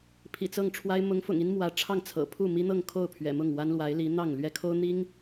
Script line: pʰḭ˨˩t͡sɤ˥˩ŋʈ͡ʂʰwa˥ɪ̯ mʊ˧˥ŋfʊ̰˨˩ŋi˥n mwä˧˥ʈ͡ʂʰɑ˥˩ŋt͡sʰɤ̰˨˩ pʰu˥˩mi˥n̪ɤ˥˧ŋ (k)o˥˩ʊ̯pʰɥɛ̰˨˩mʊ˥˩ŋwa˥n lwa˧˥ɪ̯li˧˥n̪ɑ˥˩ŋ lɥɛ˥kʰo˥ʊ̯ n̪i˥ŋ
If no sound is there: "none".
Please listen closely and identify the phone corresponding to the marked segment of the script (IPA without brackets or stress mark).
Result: kʰ